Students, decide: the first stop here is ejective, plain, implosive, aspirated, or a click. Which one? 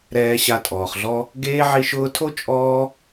ejective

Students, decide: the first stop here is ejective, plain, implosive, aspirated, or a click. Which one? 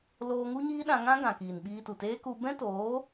implosive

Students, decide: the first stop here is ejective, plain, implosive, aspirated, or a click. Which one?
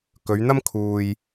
plain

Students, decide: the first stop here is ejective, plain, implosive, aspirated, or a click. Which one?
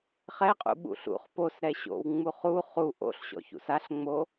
ejective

